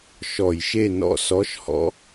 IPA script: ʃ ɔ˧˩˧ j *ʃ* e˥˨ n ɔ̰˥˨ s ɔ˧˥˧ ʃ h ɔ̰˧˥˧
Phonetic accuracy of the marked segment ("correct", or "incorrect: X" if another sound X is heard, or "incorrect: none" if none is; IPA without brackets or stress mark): correct